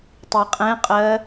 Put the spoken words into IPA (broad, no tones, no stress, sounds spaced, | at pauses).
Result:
tˤ i qʼ ɛ̃ qʼ ɜ